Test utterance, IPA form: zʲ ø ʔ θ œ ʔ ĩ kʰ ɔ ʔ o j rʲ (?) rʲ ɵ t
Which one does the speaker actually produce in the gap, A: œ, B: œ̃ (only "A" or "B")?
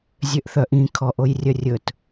A